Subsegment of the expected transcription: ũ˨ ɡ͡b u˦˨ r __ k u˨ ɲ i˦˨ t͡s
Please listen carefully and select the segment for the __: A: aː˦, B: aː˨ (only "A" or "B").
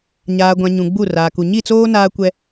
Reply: B